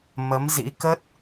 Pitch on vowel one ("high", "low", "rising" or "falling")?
rising